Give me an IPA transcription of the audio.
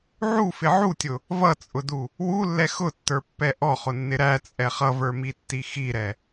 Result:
ʕ u f ɪ ʕ u tʲ ʊ | v ʌ t͡sʼ ʊ d u | w u lː ɛ x ʊ tː ə˞ pː ɛ ʔ ɔ χ ʊ nː ɪ ɾ æ t͡sʼ ɛ χ ʌ v ə˞ m i tː i x i ɾ ɛ

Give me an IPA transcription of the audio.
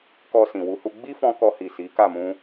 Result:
k ɔ˧ s ĩ˨ w u˨˦ h u˧ ɡ͡b i˦ f ɔ̃˧ k ɔ˧ h i˨ s i˨˦ k a˦˨ m ũ˧

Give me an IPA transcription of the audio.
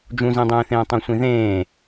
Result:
d͡ʒ ũ z ĩ dˤ ẽː θ ẽː tˤ õ sʷ ĩ ð ẽː

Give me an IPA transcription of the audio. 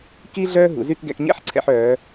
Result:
k i˥ ɮ œː˥ ɦ ṵ˩˧ z y˥˧ k ɡ ɛ̰˧ k ɲ ɛ̰˥ ħ ǀʰ ɛ̰˧ ħ œː˩˧

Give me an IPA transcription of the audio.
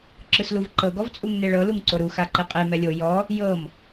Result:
ǁ ɯ s l u v ǃ ɤ ɡ ɔ v t͡sʼ u ŋ n e ɭ ɤ l u ŋ ǀ o ɾ u x a ǃ e qʼ e m ɛ lʲ o j ɔ | j ɤ m

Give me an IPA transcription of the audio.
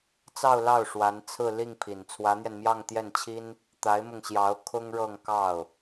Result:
t͡s ɑ˥˧ ʊ̯ l ɑ˥˩ ʊ̯ ʂ w a˧˥ n t͡sʰ ɹ̩˥˧ l i˥˩ ŋ pʰ i˨˩ n t͡sʰ w ä˧˥ n̪ j ɛ˧ n m j ɑ˥˧ ŋ t̪ j ɛ˥˩ n t͡ɕʰ i˥ n | t̪ a˧˥ ɪ̯ m ʊ˧ ŋ ɕ j ɑ˧˥ ʊ̯ kʰ ʊ˥ ŋ ɻ ɤ˥˧ ŋ k ɑ˥˩ ʊ̯

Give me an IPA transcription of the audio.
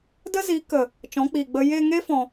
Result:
d ə˦ z iː˨˦ k ə˨ | t͡ʃ ɔ̃˨˦ k͡p iː˨ ɡ͡b ə˧ j e˧ ŋ e˦ f ɔ̃˧

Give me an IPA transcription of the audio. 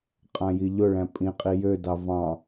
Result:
qʼ ã j i ʎ ʊ ɭ æ̃ pʼ ĩ qʼ i j ø d ɑ v ɑ̃

